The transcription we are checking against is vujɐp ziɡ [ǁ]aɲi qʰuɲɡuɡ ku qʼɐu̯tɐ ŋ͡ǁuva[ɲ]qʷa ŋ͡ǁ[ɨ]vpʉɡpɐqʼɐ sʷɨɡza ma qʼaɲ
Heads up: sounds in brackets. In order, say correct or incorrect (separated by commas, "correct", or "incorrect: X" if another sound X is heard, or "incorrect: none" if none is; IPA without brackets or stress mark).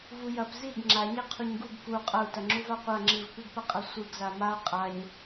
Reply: incorrect: ŋ͡ǁ, incorrect: none, correct